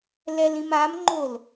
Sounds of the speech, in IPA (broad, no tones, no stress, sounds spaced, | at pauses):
l ɛ l ĩ m a m ŋ͡ǃ o l